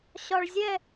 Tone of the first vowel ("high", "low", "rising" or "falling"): low